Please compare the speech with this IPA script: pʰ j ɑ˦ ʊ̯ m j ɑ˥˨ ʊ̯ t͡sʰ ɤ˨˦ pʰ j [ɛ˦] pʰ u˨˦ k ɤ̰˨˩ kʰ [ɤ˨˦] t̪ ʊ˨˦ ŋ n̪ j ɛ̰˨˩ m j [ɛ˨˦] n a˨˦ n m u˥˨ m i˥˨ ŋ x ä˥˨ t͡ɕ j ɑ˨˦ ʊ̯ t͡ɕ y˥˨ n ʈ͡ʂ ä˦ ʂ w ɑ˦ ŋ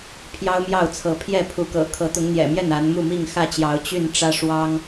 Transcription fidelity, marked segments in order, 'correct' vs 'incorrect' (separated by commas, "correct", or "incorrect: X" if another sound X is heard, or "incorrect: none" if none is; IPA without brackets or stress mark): incorrect: ɛ˥˨, correct, incorrect: ɛ˥˨